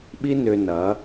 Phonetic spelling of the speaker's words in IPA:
ɓ i˦ n ʏ˧ n ɐ˨˦

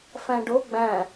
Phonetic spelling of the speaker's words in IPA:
f æ̃ ɖ o ɡ͡b æ̃

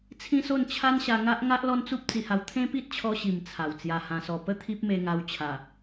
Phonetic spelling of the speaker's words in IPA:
t͡sʰ ĩ˦ s o˥˧ n t͡ɕʰ a˦ n ɕ a˧ ŋ a˦ ʔ ŋ a˦ ʔ l ɔ˦ n t͡s u˦ p̚ t͡s i˧ h a˧ w t̪ʰ ẽ˦ p i˦ t̚ t͡ɕʰ ɔ˧ ɕ i˨˩ m t͡sʰ a˨˩ w t͡s j a˧ h ã˧ s ɔ˧ p ə˥˧ t̪ʰ i˦ p̚ m e˧ ŋ a˧ w t͡ɕʰ a˨˩

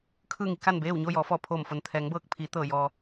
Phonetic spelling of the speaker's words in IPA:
kʰ ɯː˥˨ ŋ i˩˧ k a˥˨ n b eː˥˨ w ɲ oː˥˨ j ɔː˩˧ f ɔː˧˩ pʰ oː˧˩ m f o˩ n t̪ʰ ɛː˩˧ ŋ b ɤː˧˩ k̚ pʰ iː˩˧ t̪ ɤː˧˩ j ɔː˩

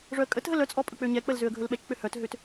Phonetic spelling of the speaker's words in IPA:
ʐ œ ə̯ kʼ ə t ɦ ə l œ t͡sʼ ɔ pʼ ɵ k͡p ø ɲ ɛ k͡p ə l z ø ə̯ ɡʱ ɵ l ɓ ɛ t͡ʃ k͡p ø h œ t ɦ ø t

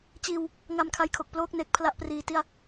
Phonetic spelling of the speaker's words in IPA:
t͡ɕ iː˧ w | ŋ a˧ m kʰ a˧ j kʰ o˨˩ k̚ p l oː˥˩ k̚ n e˨˩ k̚ pʰ l a˥˩ ʔ p r iː˧ t i˥˩ a̯

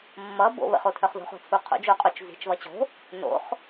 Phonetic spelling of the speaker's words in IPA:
mː ʌ b o̰ β ə̰ χ o tʰ œ χ ð o̤ χ o̤ t͡sʰ u qʰ o̰ d͡ʒ o qʼ o t͡ʃ z i̤ t͡ʃ β ʌ t͡ɕ o̤ | n o̰ χ

